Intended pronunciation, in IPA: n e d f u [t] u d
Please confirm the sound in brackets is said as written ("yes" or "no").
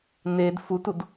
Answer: yes